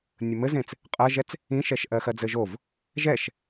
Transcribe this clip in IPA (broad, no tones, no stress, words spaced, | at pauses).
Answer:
nʲəmɘzẽt͡s | qʼɜʒɛt͡s | ĩʃɛʃ ʔɜxɜd͡zɘʒov | ʒɛʃ